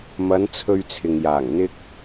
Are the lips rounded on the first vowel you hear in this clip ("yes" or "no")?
no